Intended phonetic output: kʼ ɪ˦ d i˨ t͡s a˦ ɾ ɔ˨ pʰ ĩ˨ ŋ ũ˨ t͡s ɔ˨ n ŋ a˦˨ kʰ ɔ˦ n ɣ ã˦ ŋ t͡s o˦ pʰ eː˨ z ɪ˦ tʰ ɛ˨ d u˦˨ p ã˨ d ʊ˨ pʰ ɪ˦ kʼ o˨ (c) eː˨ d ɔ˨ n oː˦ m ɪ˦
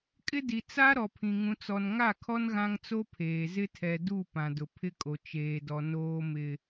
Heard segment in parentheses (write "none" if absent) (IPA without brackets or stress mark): t͡ʃ